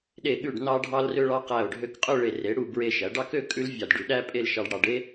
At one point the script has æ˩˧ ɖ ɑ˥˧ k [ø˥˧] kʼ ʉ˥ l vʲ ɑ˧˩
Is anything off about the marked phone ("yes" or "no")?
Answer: no